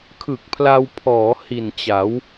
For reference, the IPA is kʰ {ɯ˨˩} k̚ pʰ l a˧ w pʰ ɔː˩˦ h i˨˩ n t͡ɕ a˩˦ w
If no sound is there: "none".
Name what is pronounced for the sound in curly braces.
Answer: ɯ˨˩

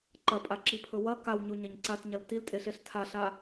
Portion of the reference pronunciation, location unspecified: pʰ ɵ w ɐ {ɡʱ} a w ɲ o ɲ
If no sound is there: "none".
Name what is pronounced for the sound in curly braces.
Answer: k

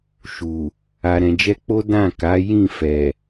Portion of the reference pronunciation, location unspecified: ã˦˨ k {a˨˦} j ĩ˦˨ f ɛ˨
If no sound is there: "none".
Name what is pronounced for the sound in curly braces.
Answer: a˨˦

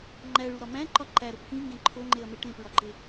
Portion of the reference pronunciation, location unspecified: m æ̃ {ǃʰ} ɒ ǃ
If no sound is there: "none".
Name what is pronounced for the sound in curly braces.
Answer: ǃ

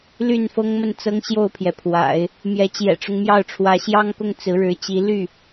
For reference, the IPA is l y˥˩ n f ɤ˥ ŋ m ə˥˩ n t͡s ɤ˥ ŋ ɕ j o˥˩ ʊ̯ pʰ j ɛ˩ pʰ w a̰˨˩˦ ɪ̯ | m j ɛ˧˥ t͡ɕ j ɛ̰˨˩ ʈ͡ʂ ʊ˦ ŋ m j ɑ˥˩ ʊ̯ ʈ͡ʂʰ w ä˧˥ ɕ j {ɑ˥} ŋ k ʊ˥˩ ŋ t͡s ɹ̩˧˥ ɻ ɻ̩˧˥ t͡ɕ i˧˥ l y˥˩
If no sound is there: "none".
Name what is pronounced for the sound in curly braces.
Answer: ɑ˥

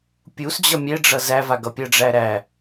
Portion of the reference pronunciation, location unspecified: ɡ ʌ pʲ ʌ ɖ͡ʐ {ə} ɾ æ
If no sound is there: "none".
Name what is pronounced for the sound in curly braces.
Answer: æ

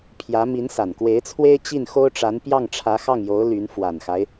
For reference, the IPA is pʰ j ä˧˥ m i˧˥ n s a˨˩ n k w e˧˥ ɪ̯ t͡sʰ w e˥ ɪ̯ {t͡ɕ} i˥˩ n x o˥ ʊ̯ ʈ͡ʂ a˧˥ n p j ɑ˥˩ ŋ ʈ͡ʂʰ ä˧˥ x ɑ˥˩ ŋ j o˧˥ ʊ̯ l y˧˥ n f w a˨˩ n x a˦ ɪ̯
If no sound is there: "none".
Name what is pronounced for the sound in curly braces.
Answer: t͡ɕ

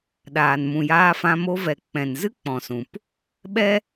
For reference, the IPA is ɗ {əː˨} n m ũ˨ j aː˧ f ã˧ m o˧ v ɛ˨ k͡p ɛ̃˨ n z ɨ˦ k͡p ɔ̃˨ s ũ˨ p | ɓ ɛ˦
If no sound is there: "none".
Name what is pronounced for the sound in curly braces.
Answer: aː˨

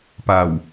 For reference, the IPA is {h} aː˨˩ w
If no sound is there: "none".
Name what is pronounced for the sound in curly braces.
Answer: p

